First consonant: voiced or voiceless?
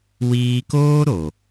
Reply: voiced